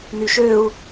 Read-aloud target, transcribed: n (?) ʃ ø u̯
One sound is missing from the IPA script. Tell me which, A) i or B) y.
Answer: B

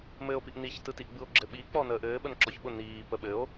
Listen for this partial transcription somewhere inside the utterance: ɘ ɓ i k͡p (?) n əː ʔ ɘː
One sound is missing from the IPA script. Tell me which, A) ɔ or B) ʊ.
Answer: A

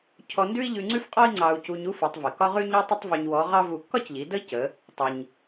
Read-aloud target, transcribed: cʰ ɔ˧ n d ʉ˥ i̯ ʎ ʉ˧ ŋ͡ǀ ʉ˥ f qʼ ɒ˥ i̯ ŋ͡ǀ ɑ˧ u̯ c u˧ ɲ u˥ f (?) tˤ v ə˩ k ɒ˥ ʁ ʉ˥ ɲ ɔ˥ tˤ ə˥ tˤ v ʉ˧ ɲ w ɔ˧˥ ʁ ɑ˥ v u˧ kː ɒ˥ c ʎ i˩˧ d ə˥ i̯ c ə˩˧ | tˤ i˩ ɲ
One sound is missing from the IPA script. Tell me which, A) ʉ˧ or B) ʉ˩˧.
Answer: B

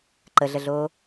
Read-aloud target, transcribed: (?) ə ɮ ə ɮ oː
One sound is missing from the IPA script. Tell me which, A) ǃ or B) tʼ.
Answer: A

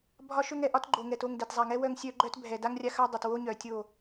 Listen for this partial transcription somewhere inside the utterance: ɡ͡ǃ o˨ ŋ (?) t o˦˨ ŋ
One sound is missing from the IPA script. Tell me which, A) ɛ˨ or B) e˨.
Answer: A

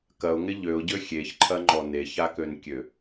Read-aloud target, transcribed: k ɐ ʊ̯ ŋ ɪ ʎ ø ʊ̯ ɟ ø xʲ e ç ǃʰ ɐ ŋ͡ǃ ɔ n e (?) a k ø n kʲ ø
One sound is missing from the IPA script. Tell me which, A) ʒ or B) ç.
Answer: B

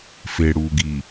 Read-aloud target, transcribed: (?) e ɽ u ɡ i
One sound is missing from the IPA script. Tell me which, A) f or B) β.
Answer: A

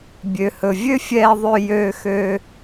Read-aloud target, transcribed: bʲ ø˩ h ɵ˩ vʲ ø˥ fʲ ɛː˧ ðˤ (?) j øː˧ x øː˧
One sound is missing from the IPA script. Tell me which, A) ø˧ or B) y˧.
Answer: A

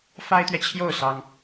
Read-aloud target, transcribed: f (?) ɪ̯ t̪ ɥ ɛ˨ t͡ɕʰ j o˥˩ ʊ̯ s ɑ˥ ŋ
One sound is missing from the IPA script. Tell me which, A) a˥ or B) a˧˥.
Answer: A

